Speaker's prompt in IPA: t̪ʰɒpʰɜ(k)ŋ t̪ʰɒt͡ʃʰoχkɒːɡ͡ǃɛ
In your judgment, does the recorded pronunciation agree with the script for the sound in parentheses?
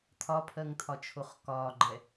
no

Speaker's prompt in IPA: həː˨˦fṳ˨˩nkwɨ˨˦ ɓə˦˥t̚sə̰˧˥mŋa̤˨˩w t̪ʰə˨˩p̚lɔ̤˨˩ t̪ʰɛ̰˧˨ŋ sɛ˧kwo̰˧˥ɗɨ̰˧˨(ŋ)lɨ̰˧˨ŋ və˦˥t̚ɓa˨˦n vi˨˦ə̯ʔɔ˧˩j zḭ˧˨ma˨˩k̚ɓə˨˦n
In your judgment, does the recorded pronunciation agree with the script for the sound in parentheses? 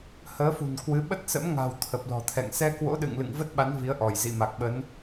yes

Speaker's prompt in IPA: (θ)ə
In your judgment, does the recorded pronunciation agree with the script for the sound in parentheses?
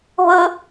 no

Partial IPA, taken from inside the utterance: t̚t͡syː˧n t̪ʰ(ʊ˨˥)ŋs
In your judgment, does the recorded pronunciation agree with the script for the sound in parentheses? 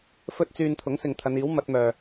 yes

